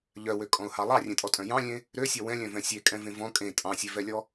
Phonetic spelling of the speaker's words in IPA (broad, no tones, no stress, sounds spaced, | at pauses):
ʎ œ w ø kʼ ɔ̃ ʊ̯ h ɑ lˠ ɑ rʲ ẽ tʼ ɔ tʼ œ̃ j ɑ̃ lʲ ẽ | ɾ ø sʲ ɔ w ɛ̃ lʲ œ̃ v ɛ̃ sʲ e kʼ ɛ̃ v ẽ v ɔ̃ kʼ ẽ tʼ ɑ̃ sʲ e v ɛ lʲ ɔ